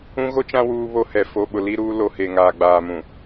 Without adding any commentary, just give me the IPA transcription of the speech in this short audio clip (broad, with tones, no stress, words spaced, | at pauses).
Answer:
ũ˦ɣo˦t͡ʃã˦ wuː˦βo˦hɛ˨ fo˨ ɓʊ˨li˦ɾuː˦ lo˨ he˨ŋaː˨ɡ͡baː˨mũ˨